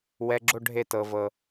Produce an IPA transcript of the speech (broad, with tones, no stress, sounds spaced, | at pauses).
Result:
w ɛ˧˥˧ ɡ͡ǁ o˥˧ ɖʱ e˥˩ t ɤ˨ v ɤ˨